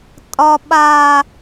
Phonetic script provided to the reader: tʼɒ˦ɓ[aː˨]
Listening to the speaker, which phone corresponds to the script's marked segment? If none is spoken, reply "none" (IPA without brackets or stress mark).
aː˦